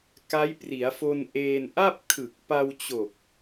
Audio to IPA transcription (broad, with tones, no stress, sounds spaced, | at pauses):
k a˦˥ j p r i˩˦ a̯ f o˧ n ʔ eː˧ n ʔ a˥˩ p̚ kʰ ɯ˨˩ k̚ p a˧ w t͡ɕ o˨˩ k̚